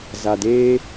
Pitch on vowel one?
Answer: low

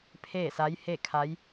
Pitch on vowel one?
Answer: falling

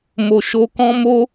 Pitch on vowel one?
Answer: low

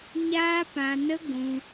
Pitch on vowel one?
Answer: high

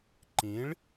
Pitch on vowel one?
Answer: rising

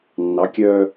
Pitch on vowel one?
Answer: rising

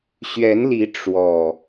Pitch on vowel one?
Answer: rising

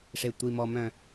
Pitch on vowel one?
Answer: low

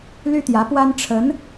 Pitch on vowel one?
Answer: high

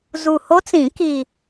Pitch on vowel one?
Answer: low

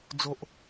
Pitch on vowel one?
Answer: low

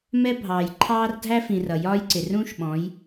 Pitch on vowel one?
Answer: high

